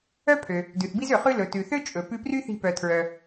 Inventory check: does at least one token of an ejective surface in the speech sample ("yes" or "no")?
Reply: yes